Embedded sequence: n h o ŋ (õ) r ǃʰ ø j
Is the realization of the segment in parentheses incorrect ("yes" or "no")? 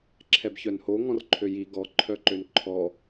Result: yes